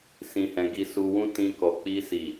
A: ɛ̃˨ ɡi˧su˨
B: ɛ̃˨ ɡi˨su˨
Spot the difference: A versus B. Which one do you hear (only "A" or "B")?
B